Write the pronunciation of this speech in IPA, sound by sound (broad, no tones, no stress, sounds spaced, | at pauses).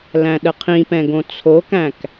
l æ̃ ɗ ə qʰ ĩ p ɛ̃ ɡ õ t͡sʰ o k æ̃ k